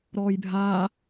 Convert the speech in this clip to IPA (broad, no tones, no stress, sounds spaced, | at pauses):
ɾ ɔː j bʱ aː